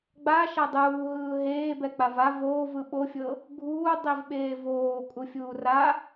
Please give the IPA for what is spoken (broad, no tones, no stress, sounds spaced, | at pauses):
ɡ͡b a ʃ a dˤ uː ɦ ɯː ɦ eː b ɛ k͡p a v a v oː v ɯ ɓ o fʲ ɤ | ɡʱ uː dˤ i v ɓ eː v oː kʼ u fʲ uː r a